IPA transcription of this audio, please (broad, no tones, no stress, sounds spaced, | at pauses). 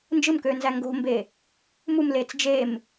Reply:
n d͡ʒ ɯ m k øː n z æ ŋ ɡ o̤ m b e | m u m l eː t͡s d͡ʒ e m